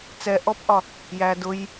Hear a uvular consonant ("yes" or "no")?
no